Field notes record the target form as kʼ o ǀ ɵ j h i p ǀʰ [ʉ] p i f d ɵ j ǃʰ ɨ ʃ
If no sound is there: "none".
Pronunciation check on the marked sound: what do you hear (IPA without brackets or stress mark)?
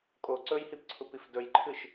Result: u